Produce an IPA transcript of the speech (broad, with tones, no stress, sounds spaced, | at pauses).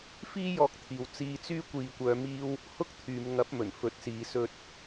f iː˥ j ɔː˧ k̚ t̪ʰ iː˨ w t͡s iː˧ t͡s yː˥ kʷ iː˨ kʷ œː˨˧ m iː˧ w | h ʊ˥ k̚ t̪ʰ yː˨˧ m ŋ ɐ˨˥ p̚ m ɵ˨˩ n f ɵ˨˥ t̚ s iː˨˧ s ɵ˧ t̚